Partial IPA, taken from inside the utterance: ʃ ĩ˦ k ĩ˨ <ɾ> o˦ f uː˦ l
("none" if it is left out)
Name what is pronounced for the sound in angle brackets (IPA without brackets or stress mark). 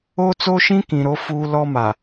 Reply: ɾ